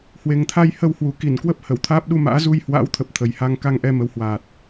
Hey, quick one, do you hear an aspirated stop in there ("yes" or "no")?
yes